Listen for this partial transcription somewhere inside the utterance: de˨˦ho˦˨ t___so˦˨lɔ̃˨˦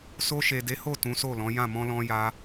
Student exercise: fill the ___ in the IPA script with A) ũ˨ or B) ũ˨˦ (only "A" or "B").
B